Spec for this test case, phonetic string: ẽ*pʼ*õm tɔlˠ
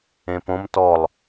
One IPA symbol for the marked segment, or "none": p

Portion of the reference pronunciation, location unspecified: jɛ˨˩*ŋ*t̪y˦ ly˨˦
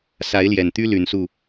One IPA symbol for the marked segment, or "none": n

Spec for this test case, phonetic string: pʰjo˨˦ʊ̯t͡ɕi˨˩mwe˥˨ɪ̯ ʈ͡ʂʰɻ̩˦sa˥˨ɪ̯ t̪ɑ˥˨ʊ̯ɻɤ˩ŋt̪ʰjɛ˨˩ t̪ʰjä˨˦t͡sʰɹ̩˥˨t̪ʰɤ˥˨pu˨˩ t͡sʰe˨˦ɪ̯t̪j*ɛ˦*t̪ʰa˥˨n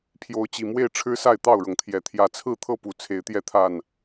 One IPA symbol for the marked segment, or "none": ɛ˥˨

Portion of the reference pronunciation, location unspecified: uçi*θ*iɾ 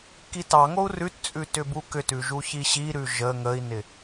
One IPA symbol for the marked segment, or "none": ɕ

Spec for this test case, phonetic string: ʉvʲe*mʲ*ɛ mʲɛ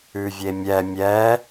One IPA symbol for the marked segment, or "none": mʲ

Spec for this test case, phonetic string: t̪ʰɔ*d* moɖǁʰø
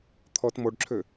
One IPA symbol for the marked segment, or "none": t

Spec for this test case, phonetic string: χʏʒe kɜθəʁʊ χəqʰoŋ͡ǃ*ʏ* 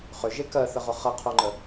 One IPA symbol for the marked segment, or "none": ə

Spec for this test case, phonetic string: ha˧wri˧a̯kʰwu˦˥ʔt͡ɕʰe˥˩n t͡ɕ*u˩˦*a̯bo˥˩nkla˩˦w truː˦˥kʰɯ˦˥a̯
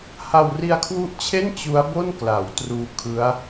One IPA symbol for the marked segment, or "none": u˦˥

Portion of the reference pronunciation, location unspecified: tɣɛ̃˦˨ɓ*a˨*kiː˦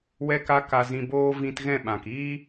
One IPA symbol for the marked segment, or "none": ã˨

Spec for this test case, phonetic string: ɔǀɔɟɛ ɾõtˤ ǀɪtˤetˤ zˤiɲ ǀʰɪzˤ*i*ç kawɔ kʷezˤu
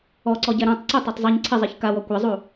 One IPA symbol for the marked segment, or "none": i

